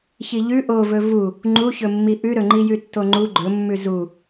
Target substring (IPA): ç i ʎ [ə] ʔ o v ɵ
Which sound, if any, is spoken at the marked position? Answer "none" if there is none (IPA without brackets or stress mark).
ʉ